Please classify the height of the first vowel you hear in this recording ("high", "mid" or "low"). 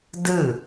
high